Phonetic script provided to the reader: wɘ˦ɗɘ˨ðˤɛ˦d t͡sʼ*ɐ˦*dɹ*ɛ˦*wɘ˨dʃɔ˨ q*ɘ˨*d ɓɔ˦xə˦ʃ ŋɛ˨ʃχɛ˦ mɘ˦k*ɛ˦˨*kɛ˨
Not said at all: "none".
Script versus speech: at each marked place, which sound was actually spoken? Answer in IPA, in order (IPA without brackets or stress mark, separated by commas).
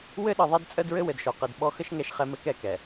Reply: ə˦, ɘ˦, ɘ˨, ɛ˦˨